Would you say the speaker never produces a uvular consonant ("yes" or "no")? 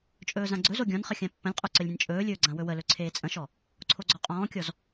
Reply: no